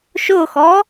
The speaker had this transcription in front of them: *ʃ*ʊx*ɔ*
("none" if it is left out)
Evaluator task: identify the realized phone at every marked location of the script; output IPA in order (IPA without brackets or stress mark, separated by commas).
ʃ, ɔ